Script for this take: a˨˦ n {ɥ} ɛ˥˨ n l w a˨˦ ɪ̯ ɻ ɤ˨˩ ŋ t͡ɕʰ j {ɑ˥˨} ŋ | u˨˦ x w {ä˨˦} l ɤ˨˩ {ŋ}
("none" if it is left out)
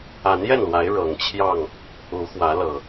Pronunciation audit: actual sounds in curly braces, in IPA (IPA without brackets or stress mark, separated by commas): j, ɑ˥˨, ä˨˦, none